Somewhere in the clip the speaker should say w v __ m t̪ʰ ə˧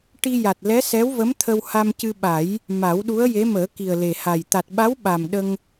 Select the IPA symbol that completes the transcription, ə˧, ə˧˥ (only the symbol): ə˧˥